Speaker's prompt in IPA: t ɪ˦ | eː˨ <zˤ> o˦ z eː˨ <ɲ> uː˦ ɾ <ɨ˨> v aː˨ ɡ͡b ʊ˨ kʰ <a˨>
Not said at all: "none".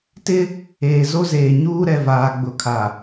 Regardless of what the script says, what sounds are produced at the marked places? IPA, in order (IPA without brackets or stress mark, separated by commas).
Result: z, ɲ, ɛ˨, a˨